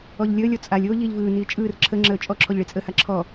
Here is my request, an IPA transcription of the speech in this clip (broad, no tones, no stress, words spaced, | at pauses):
ɔʎlʲəːlʲɔ t͡sʼalʲ oːʎiːʎvɯːniː t͡ʃʼɯːr ǁʰəŋ͡ǁəː t͡ʃʼɔǁʰɔʎ ɭit͡sʼəha ǁʰɔ